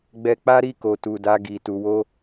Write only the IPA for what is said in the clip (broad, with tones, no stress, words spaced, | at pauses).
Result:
ɡ͡bɛ˧k͡pa˦ɾi˦˨ ko˨tu˨da˧ ɡi˨ tu˨wo˧